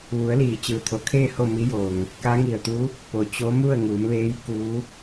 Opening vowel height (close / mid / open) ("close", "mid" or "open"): close